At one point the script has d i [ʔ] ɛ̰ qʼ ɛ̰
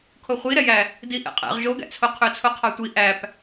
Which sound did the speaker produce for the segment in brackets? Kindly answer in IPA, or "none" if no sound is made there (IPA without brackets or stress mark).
ʔ